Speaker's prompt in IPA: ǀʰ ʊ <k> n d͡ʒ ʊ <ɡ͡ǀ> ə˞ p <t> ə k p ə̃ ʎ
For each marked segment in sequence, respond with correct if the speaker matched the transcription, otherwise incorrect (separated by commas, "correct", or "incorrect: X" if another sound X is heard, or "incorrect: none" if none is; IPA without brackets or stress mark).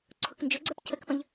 correct, correct, incorrect: cʰ